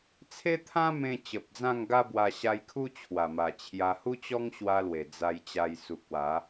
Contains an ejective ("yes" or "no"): no